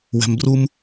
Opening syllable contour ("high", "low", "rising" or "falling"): low